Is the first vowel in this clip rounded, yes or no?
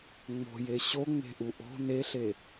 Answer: yes